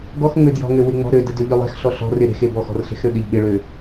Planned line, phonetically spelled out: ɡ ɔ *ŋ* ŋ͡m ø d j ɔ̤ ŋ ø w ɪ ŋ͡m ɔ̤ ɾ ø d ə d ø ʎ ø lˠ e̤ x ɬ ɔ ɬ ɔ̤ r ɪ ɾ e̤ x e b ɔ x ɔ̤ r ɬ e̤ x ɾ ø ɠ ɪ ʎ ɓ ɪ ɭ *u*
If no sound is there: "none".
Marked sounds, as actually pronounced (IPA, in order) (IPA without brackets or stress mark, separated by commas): x, ø